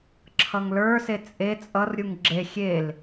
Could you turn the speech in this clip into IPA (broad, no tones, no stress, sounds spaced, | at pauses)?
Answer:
ǁʰ ʌ ŋ l ə˞ s e t͡sʼ e t͡sʼ ʌ r ɾʲ u ŋ ɡ͡ǁ e xʲ e l